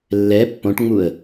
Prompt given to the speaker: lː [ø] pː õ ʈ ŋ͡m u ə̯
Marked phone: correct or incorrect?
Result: incorrect: ɛ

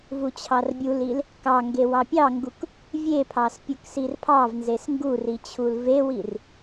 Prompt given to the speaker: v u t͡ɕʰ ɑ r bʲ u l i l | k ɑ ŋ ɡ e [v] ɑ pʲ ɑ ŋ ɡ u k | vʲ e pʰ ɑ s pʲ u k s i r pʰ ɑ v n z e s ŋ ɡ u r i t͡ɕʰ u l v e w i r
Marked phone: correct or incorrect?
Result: incorrect: w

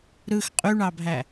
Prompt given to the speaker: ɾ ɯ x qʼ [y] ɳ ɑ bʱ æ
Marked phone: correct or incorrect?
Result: correct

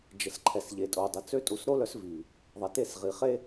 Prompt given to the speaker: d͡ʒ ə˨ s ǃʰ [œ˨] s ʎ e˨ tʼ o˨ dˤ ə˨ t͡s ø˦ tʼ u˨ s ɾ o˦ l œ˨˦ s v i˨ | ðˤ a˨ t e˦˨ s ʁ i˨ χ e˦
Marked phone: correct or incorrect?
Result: incorrect: ɛ˨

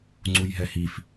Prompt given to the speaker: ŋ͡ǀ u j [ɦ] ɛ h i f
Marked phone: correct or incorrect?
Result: correct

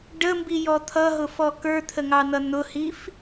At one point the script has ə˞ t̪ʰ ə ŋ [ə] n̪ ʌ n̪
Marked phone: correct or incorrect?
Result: incorrect: ɑ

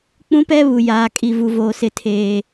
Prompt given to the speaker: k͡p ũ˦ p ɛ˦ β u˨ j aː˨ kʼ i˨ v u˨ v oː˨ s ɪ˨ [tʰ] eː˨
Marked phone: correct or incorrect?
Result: correct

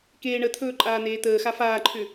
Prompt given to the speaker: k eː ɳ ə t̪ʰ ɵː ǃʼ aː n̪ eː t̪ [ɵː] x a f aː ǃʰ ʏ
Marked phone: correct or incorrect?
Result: incorrect: əː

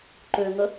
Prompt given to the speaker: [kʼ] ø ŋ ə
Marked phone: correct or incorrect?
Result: incorrect: ǃ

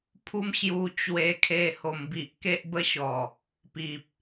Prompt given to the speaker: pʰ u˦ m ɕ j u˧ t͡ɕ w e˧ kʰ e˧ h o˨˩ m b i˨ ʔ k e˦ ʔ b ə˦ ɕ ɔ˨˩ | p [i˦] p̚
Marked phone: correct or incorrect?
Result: incorrect: i˨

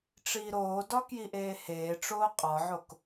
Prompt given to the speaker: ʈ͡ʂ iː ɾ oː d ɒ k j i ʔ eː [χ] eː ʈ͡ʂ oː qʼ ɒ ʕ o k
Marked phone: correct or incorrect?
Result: incorrect: h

